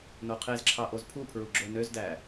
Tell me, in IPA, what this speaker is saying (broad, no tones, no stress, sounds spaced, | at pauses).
n o qʰ e z ǁʰ ɑ ʔ o z pʰ u pʰ ɹ u ɡ͡ǁ ø n ø z d æ